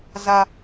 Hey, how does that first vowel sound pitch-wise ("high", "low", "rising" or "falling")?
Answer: high